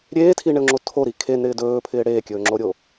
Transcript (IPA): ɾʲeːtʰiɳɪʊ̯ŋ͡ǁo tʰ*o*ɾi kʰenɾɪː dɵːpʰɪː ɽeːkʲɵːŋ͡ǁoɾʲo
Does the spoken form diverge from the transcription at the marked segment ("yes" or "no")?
no